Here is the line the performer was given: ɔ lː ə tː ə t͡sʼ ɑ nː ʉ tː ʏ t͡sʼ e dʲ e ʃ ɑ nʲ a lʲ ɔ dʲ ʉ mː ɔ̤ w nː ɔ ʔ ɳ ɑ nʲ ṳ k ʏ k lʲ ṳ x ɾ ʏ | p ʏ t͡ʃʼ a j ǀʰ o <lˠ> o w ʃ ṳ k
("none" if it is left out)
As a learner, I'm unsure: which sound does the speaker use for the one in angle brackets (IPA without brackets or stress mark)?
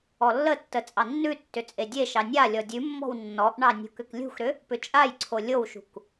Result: lʲ